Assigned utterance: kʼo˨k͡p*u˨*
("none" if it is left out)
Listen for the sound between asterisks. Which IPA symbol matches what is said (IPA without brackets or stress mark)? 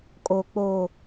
o˨